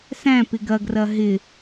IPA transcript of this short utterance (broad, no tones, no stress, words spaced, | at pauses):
sæ̃ pɪɡɐɡrɐ ɦɪ